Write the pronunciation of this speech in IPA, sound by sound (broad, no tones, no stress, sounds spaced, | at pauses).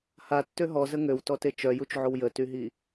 h a tː ø ɦ ɔ z ə ŋ ø w t ɔ t e t͡ʃ œ j u t͡ʃ ʕ o w j ə t y ɦ i